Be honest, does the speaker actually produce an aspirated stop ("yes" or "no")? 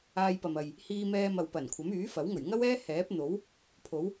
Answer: yes